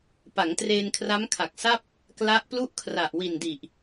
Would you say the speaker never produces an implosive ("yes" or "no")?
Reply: yes